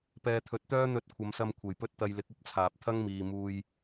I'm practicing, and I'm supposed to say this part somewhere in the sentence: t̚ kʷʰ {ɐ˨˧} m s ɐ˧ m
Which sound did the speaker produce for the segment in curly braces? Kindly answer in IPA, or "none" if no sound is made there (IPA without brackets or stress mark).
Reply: ɐ˨˧